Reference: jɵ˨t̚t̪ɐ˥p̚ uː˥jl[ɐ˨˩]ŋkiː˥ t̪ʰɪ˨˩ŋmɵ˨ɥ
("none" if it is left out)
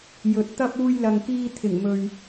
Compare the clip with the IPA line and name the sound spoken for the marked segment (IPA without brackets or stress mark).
ɐ˧